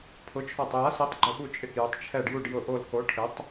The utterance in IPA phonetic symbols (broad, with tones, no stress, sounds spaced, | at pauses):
pʰ ʊ˩˥ t͡ʃʰ ɔ˧˩ tˤ j a˩˥ s i˩˥ tˤ ɡ͡ǃ ʊ˧˩ ɓ u˧˩ t͡ʃʼ ɪ˧˩ k j ʊ˩˥ tˤ t͡ʃʰ ɛ˧˩ ɖ j u˧˩ ɖ j ʊ˧˩ ʔ o˧˩ l k o˩˥ ʈʰ ɪ˩˥ tˤ